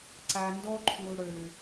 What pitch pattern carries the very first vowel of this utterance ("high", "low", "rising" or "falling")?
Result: low